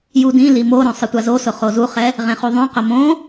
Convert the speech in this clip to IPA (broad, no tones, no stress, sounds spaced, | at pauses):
j u d ĩ l i m o ɾ õ sˤ ɪ tʷ a z o s ʊ χ o z u χ ɛ | ʁ ẽ χ u ðˤ ũ q ʊ m õ